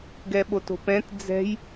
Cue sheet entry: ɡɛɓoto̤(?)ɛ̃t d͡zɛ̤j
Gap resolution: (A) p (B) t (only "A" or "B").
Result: A